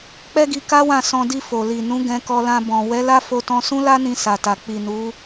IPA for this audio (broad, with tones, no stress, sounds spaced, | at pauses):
k͡p ɛ˦ ɡ i˧ k a˦ w ã˦˨ s ɔ̃˧ d i˧ f o˨ l i˨ n ũ˨˦ ɡ ɛ̃˧ k ɔ˧ l ã˧ b ɔ̃˨ w ɛ˨˦ l a˦ f o˦ t ɔ̃˦ s ũ˦ l a˦ n ĩ˧ s a˨ t a˨ k͡p i˨ n u˨˦